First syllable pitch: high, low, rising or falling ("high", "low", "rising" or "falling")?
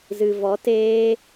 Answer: low